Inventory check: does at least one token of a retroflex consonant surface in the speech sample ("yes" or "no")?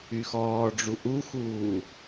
yes